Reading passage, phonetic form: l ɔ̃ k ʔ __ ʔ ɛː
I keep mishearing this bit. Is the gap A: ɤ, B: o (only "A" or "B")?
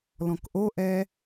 B